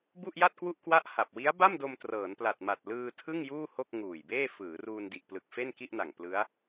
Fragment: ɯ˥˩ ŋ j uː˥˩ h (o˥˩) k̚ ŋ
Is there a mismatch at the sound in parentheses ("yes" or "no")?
no